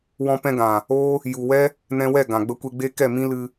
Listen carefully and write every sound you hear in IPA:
w ɔ̃˦ p ɛ̃˦ ɡ ã˨ | oː˦ | j u˨ w ɛ˦ | n ɛ̃˧ w ɛ˦˨ ɡ ã˨ ɡ͡b ə˦ kʷ e˦ ɡ͡b e˦ k ɛ˦˨ m ĩ˦ l ɨ˧

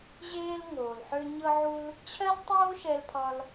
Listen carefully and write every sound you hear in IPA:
ʑ eː˥ l ŋ oː˨ l ħ ø˦ ɲ ɤ˥ ʕ u˥ l | t͡ɕʰ ɜ˥ l tˤ oː˥ ʃ ɛ˦ l pʰ ɒ˦ l

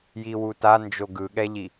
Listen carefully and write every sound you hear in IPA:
j i w u t a n d͡ʒ o ɡ ɯ ɠ ɛ ʎ i

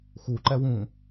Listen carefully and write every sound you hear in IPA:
x u ǃ ɛ w ũː

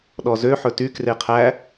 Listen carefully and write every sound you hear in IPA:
ɗ ɔ z ø ħ ɵ t y k r e qʰ æ

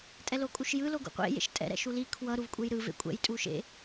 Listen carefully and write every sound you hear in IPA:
tʼ ɛ l o kʼ u ʃ j ɯ l o ɡ ṵ qʷ ḛ j ḛ ʃ tʼ ɛ̰ ɾ ɛ̰ ʃ u l i kʰ w ʌ ɾ u v kʷʼ e j ɾ ɯ v ḛ kʷʼ ɛ̰ j tʼ u ʃ ḛ

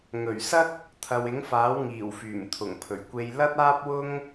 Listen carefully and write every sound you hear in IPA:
ŋ ɵ˨˩ ɥ s ɐ˥ k̚ | t̪ʰ ɐ˨ w ɪ˨˥ ŋ f aː˨˥ w ŋ iː˨˩ w f yː˨˩ m t̪ʰ ʊ˨˩ ŋ pʰ ɵ˨˩ ɥ kʷ e˧ j l ɐ˥ t̚ aː˥ p̚ w ʊ˥ ŋ

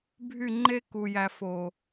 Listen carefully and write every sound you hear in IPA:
bʱ y˦˨ ŋ͡ǃ e˦ k u˨ j æ˨ f o˨

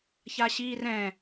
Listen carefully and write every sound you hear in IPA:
ç a ɕ iː r ɛ̃

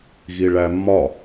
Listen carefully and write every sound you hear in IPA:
ɣ i ɭ æ mː ɒ

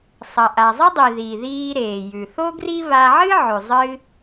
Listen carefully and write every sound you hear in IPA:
sˤ ɐ˩ ʔ a˩ zˤ ɐ˥ dˤ i˩ ð i˩ ð iː˧ ɾ eː˩ j ʉ˩ θ o˥ ɡ r i˥ β a˧ ʕ ɨ˥ ʕ ʉ˩ zˤ ɨ˧

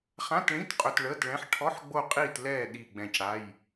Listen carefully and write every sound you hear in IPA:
χ ã˧˥˧ t ɭ ĩ˧˥˧ t qʼ ɵ˧˥˧ t ɭ əː˧˥˧ t ɭ ɛ̃˧˥˧ ħ ʈʰ ɔ˧˥˧ ħ ɡ͡b o˦˨ qʼ iː˦˨ t l ɛː˦˨ ɗ i˦˨ ɡ͡b ɛ̃˦˨ c ɽ a˧˥˧ j

